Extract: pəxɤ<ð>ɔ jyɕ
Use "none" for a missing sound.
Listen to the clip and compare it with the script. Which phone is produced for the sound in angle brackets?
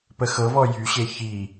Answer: v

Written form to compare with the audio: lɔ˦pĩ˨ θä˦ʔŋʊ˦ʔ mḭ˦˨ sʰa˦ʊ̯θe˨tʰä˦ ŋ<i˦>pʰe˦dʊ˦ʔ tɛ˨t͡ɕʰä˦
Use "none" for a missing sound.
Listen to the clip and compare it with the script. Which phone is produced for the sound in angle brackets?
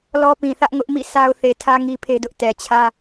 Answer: i˦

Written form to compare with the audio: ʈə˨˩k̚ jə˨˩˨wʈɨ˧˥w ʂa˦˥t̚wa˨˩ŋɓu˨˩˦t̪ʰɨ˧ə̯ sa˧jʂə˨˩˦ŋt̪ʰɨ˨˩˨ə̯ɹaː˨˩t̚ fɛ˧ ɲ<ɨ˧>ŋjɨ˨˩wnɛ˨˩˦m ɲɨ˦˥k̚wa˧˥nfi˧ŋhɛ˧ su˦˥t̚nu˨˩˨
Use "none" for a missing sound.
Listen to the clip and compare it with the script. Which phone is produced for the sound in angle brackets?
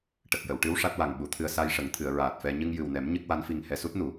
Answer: ɨ˧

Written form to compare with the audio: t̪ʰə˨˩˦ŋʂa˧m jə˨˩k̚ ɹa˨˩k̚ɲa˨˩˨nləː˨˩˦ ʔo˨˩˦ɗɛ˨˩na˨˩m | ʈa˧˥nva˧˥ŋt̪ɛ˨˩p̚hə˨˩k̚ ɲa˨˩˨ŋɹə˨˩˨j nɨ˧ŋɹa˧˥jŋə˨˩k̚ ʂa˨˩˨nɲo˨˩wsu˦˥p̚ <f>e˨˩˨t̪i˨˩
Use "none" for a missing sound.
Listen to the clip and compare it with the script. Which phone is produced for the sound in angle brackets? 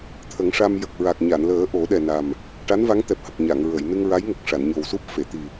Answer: f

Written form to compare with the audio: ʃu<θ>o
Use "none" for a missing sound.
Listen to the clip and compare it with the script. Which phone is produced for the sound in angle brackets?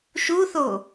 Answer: θ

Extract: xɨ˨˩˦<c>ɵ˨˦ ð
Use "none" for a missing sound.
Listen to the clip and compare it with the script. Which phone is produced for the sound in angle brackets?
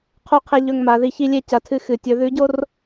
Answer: tʲ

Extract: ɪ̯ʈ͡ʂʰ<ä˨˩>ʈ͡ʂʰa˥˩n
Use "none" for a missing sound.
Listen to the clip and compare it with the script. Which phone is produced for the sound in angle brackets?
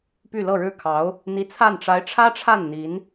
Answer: ä˥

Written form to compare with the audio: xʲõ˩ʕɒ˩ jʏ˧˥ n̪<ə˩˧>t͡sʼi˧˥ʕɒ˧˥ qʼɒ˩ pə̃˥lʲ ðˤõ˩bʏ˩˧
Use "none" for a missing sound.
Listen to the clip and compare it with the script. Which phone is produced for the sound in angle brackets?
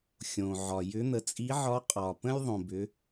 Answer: ə˩˧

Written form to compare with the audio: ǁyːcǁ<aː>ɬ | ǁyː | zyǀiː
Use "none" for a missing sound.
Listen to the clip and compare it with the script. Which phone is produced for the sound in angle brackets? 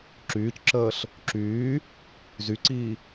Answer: əː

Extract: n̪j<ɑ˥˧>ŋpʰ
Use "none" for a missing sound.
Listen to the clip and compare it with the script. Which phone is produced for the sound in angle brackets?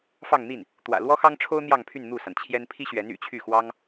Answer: ɑ˥˧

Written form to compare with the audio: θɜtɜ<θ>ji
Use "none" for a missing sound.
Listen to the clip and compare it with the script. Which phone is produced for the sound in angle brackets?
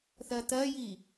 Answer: none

